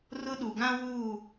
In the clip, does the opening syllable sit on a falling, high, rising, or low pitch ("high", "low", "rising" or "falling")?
high